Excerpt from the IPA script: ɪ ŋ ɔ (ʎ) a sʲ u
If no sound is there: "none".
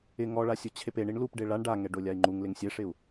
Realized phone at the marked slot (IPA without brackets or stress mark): ɭ